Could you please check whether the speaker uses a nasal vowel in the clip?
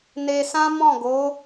yes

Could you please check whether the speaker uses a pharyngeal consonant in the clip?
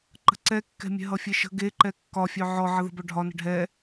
yes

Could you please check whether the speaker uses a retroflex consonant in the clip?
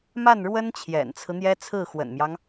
yes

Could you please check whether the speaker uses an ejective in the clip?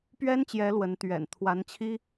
no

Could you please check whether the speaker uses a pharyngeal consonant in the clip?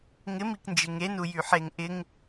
yes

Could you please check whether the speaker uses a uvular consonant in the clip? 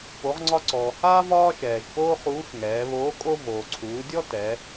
yes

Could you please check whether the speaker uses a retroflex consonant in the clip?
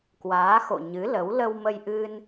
no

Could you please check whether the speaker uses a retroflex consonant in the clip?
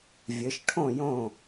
yes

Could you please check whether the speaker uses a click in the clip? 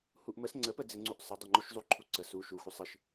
yes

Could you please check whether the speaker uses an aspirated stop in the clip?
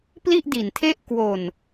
yes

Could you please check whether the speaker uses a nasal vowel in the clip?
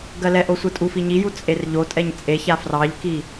no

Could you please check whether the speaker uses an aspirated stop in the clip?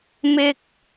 no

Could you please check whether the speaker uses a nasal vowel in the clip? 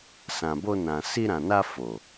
yes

